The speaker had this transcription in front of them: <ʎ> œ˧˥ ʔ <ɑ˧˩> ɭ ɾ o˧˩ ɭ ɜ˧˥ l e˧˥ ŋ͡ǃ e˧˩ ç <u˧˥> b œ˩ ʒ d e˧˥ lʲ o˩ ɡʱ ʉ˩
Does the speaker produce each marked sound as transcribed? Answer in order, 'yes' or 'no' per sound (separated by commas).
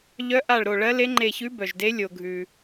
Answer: yes, no, no